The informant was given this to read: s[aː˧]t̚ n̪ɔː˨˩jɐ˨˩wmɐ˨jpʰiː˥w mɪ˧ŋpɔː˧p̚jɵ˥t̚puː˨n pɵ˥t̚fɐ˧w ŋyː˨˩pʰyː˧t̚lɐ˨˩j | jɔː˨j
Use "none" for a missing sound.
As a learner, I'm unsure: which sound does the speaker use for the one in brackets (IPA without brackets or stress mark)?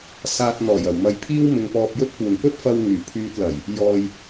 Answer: aː˧